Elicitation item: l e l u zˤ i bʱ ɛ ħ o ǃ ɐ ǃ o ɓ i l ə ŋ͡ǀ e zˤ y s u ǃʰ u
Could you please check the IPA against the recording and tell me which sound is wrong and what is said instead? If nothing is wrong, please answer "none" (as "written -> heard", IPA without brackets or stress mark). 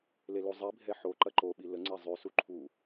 none